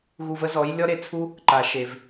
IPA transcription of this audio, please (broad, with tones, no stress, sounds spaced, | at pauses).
ɣ u˧ v ə˦ z ɔ˨˦ j lʲ ɔ˦ ɾ e˦ t͡sʰ u˦ | ǃ a˨ ʃ e˨ v